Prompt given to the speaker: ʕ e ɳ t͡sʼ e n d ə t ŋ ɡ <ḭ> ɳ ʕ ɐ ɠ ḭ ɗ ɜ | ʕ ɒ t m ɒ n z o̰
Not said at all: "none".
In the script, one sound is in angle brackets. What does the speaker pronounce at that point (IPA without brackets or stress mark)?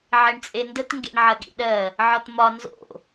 ḛ